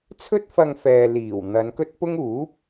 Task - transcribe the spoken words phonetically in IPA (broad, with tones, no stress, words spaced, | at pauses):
t͡sʰɵ˥t̚fɐ˧ŋfɛː˨ liː˨˩w n̪ɐ˨˧nkɵ˥t̚pʊ˥ŋ uː˨˥p̚